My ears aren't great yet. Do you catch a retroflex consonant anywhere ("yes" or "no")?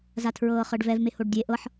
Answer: yes